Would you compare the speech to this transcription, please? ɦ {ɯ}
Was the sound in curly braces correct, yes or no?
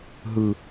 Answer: yes